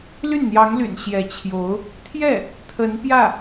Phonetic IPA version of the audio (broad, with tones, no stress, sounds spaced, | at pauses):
l y˥˩ n n̪ j ɑ˧˥ ŋ l y̰˨˩ n ɕ j ɛ˧˥ t͡ɕʰ j o˧˥ ʊ̯ | t̪ʰ j ɛ˥˩ | t̪ʰ ə˧˥ n p j ä˥˩